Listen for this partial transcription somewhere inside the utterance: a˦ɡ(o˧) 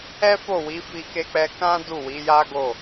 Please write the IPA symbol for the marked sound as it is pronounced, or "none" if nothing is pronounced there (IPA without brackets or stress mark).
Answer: o˦˨